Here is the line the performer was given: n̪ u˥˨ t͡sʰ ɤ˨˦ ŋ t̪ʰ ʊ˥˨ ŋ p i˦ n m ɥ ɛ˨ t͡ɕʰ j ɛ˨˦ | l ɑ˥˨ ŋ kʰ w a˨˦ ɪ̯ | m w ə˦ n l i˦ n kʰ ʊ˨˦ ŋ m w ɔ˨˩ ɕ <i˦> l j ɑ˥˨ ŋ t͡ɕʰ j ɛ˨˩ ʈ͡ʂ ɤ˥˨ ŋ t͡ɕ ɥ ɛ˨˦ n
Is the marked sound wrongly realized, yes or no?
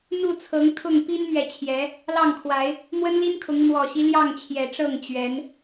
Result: no